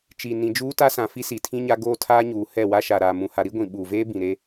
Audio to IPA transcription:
t͡ʃi˨ nĩ˨d͡ʒuː˦ta˦sã˨ fi˦si˨tʰĩ˦ɲa˦ ɡoː˦tʰaː˦ɲuː˨ hɛ˦˨wa˦ʃa˨ɾaː˨ mũ˨ha˨ɾi˦ɡʷĩ˨ ɓuː˨veː˦bĩ˨ ɾe˦

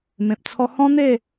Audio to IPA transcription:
mẽ˨p̚t͡sʰɔ˦ hɔ̃˦n̪e˥˧

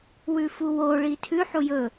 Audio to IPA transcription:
wʉfuwoɭi tʰʉħu jɵ

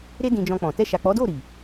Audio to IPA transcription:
ɾe˦dĩ˧d͡ʒɔ̃˧k͡pɔ̃˨ tɛ˧ʃa˨k͡pɔ˨˦do˦˨ ɾi˨

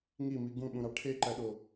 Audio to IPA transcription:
ŋimi ɡũɓũɾɑ ʈʰeǃæɗo

